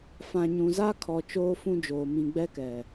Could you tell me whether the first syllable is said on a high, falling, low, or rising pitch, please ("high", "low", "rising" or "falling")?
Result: low